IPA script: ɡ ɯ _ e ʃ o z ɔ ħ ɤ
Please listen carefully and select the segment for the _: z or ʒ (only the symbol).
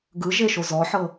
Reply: ʒ